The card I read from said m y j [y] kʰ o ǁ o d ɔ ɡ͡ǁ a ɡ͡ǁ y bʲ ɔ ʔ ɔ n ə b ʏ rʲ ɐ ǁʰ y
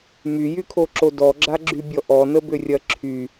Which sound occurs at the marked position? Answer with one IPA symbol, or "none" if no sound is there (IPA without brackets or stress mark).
y